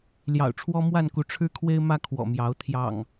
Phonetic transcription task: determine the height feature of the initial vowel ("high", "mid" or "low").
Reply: low